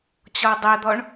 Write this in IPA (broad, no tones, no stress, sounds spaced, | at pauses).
t͡ɕ ɔ dˤ ɛ d̪ ɔ ɳ